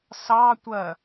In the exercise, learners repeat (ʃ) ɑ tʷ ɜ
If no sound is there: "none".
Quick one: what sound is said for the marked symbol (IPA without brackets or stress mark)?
s